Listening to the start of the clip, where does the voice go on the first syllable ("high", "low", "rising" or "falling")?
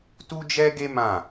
high